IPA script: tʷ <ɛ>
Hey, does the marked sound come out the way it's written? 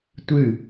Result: no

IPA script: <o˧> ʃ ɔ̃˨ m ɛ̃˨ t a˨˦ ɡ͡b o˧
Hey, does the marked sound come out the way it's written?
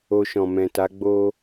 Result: yes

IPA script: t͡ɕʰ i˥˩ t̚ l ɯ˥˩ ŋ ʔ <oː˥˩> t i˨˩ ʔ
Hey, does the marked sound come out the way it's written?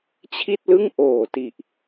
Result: no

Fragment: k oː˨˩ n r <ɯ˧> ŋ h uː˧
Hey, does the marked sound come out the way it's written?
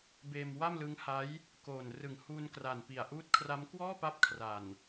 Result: no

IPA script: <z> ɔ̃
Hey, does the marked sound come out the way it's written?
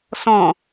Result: no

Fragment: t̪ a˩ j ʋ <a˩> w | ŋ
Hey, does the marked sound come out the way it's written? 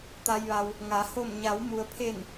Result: yes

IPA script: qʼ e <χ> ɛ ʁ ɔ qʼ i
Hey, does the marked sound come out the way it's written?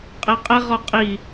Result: no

